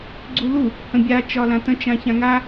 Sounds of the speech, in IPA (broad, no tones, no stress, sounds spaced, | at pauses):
ɡ͡ǀ u l u | h ə̃ bʲ a t͡ʃ ɒ l ã t ə̃ t͡ʃ ã ç ã ŋ a